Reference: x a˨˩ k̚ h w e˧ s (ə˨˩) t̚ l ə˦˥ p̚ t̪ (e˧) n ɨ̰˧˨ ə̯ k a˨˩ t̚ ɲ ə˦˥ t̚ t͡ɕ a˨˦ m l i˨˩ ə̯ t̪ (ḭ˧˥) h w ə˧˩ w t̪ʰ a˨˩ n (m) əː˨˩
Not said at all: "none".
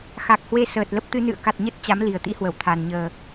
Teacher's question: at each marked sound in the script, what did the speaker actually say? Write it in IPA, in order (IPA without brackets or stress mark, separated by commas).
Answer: əː˨˩, ɨ˧, ḭ˧˥, ɲ